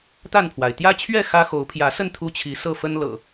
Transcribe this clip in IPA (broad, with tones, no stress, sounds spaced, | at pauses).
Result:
t̪ a˥˨ n pʰ w a˩ ɪ̯ t̪ j ä˦ t͡ɕʰ ɥ ɛ˥˨ x ä˦ x o˨˦ ʊ̯ pʰ j ä˨˦ s ə˥˨ n t̪ʰ u˦ t͡ɕʰ i˨˦ s ɤ˥˨ f ə˦ n l ɤ̰˨˩